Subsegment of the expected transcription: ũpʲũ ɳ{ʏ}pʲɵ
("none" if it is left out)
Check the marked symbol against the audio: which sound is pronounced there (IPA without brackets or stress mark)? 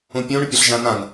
ʏ